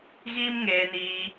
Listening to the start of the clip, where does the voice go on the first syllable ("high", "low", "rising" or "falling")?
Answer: high